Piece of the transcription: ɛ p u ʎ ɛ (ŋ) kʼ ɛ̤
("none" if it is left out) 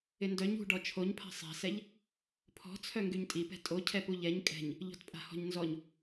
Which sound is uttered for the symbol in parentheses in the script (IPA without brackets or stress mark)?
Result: ɲ